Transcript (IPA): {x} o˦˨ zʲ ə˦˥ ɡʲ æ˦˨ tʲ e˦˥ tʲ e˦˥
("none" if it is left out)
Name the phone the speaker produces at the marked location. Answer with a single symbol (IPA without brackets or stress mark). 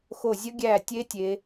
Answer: x